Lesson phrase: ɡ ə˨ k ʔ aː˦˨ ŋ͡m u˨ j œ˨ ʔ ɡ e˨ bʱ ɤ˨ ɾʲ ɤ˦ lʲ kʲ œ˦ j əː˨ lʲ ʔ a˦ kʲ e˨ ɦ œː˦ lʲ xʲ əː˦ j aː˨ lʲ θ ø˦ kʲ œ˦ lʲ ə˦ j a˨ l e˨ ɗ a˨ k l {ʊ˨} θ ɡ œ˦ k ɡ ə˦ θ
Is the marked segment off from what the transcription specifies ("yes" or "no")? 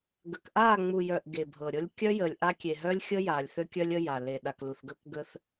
yes